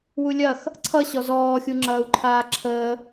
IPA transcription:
wulʲɐx | ǀʰʌɕɔ zɔːxʲu ŋ͡ǁɐːu̯ǃʰaːǁʰəː

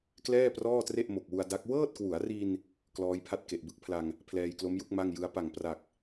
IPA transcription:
klɛː˥˩prɔː˥˩tre˥˩ʔ mo˨˩k̚wu˧a̯da˦˥k̚ wɤː˥˩t̚kwu˩˦a̯ri˧n | klɔː˦˥jpʰa˥˩t̚ ke˨˩ʔbɯ˥˩k̚pʰla˧ŋ | pʰlɛː˧jklo˦˥mju˦˥k̚ ma˥˩ŋjɯ˦˥a̯ pa˨˩ŋpra˨˩k̚

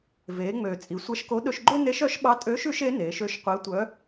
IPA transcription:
veː˩˧ ŋ͡møː˩ t͡sʼi˩˧sʷæ˧ʃko˧˥ ɗɵ˧ʃɡ͡ǃø˥ ne˧˥ʃœ˧˥ʃɓɑ˧˥ tʼøː˧˥ʃʉ˧˥ʃ e˧˥ neː˩˧ʃø˧ʃ qʷe˧˥tʷœ˧˥

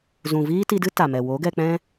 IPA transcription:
zũ˨viː˦ti˧dɨ˦ ta˨mɛ˨ wo˨˦ɡɛ˧k͡pɛ̃˦

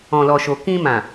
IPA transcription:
ɔ̃˨lɔ˨ʃo˨ kĩ˧mã˨

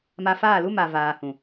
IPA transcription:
ma˧faː˦˨lu˦ma˨ vaː˨hũ˨

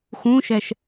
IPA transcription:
xũʃɛʃ

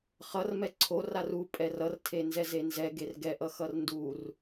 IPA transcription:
χʌrmɛ ǀʰor aru pʼɛrʌrtʰe nzɛzenzɛ ɡerɡɛʔʌxʌr ndur

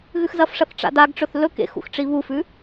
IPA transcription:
ɣʉxzɐfʂɐθ ʈ͡ʂa̰daɡʈ͡ʂɵθ lɵk ḛxṵxʈ͡ʂi βufʉ

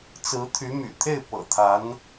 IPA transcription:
t͡sɹ̩˧˥t̪ʰy˧˥my̰˨˩t̪ʰe˥˩ɪ̯ pɤ̰˨˩t̪ʰa˧˥n

